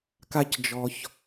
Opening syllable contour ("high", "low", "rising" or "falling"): high